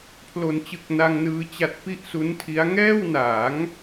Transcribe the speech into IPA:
pʰ l o˩˦ n t͡ɕ ɯ˨˩ k̚ n a˧ ŋ n ɯː˧ t͡ɕ a˦˥ t̚ p i˥˩ ʔ s u˦˥ n tʰ i˦˥ a̯ ŋ ɛː˥˩ w n aː˩˦ ŋ

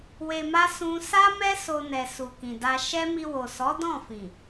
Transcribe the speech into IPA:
w e˨ m a˧ s ũ˧ s a˦ m ɛ˦ s o˧ n ɛ˨ s u˨ k ĩ˨ d a˧ ʃ ɛ˦ m i˧ w o˨ s ɔ˨˦ d ɔ̃˦˨ f ĩ˨

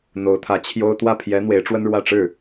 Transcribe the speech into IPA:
n̪ o˧˥ ʊ̯ t̪ʰ ä˧˥ t͡ɕʰ j o˥ ʊ̯ t̪ w ä˥˩ pʰ j ɛ˧˥ n̪ w e˧˥ ɪ̯ ʈ͡ʂ w ə˥ n ɻ w ä˥˧ ʈ͡ʂ ɻ̩˥˩

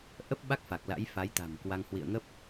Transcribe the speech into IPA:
ʔ ə˦˥ p̚ ɓ a˦˥ k̚ f a˨˩ k̚ l a̰˧˥ j f a˨˦ j t̪ a̤˨˩ m k w a˧ ŋ h w ḭ˧˨ ə̯ ŋ ə˦˥ p̚

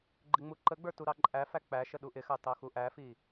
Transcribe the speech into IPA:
ɡ͡ǃ ɪ ŋ͡m u ǃ ə ɡ͡b ə˞ t u ɾ ɑ ǃʼ æ f æ k͡p æ ʃ ə ɗ u ʔ ɪ x ɑ t ɑ x u ʔ æ f i

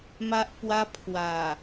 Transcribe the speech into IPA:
m a˦ ʔ p w a˦ pʰ w a˨˩

